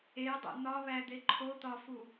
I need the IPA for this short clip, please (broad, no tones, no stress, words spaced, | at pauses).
edˤḛ n̪ɒβæd̪e ǃʰot̪ɒfu